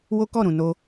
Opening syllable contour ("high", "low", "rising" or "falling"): high